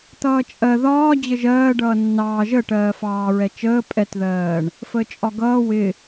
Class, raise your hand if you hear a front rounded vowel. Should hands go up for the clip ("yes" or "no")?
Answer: no